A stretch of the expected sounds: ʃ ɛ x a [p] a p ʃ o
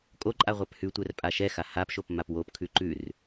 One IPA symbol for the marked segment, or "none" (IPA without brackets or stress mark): h